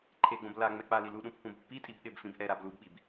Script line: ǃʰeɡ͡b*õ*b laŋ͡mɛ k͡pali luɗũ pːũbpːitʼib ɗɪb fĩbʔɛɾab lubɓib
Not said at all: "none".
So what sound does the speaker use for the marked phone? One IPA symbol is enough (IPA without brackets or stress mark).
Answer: õ